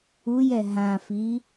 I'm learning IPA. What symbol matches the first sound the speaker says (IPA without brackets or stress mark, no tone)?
u